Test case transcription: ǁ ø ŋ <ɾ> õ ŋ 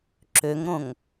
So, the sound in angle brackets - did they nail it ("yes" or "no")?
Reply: yes